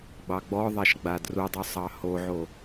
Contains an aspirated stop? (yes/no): no